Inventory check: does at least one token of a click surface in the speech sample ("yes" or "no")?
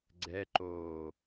yes